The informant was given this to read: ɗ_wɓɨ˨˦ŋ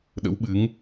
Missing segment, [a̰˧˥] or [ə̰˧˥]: ə̰˧˥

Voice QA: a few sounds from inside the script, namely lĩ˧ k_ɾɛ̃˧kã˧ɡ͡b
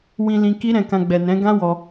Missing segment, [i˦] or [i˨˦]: i˦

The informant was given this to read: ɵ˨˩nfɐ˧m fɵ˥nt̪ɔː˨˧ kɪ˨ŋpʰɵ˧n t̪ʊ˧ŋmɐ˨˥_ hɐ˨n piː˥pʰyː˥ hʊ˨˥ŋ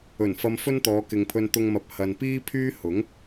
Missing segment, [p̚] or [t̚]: p̚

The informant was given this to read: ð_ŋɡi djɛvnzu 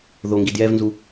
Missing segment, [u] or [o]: o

